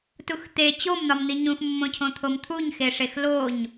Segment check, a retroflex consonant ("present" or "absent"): present